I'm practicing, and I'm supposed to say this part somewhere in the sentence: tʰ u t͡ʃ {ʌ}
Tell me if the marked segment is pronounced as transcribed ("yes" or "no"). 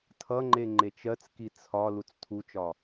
no